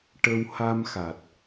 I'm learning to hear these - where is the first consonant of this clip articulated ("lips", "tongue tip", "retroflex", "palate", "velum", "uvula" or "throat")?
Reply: retroflex